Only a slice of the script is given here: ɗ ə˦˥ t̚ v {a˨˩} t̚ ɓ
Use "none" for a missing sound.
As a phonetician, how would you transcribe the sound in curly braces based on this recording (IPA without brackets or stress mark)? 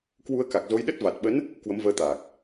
a˨˩